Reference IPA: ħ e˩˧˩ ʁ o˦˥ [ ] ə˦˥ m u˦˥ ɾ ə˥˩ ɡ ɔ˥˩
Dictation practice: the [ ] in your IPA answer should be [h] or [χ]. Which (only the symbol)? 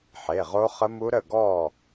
χ